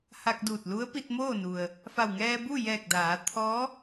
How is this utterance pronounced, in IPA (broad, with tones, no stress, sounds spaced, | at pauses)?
h a˧ k̚ d uː˧˩ t̚ l u˧˥ ə̯ p i˧ t̚ m oː˥˨ n u˩ ə̯ | f a˧˩ w ŋ ɛː˧ b u˥˨ j ɛː˧˩ k̚ d aː˩˧ t̪ʰ ɔː˧˥